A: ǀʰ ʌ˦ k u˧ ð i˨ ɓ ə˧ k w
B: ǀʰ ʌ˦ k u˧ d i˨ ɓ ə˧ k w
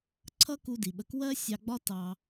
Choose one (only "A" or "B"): B